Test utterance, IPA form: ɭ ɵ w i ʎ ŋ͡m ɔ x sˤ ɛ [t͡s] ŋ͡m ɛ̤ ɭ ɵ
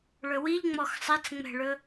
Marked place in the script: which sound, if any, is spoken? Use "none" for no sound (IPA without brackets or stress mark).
t͡s